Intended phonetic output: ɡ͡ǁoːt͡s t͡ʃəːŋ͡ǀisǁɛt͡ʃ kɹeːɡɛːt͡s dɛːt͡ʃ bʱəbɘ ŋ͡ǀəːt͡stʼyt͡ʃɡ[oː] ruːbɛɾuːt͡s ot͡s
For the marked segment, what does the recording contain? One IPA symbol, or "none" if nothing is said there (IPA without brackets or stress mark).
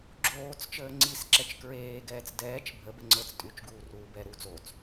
uː